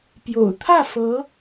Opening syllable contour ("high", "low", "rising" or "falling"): low